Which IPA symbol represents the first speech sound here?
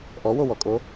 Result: ʔ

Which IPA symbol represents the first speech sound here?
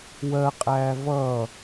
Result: w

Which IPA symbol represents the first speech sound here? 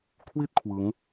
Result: kʰ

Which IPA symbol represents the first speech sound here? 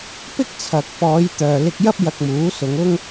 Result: p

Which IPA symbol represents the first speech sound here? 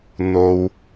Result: n̪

